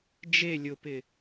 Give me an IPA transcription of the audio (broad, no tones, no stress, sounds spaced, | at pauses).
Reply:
d͡ʒ e lʲ ʊ p ɪ